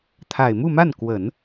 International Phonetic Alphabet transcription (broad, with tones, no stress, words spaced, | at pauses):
t̪ʰa˨˩ɪ̯mu˥˧ma˥˩n kwə˨˩˦n